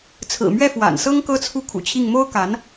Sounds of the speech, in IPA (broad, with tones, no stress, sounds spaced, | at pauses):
t͡sʰ ɹ̩˨˩ m ɥ ɛ˥˩ f w a̰˨˩ n s ɤ˥ ŋ k ɤ˥ t͡sʰ u˥˩ kʰ ṵ˨˩ t͡ɕʰ i˥˩ ŋ m o˥ ʊ̯ k a˧˥ n